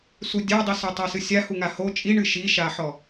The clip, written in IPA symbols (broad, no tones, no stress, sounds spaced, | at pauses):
s u dʲ a dˤ i s o tˤ a s ɨ sʲ a h u ŋ a h o t͡ʃʼ i ɳ ɨ ʃ i ʃ a ħ ɔ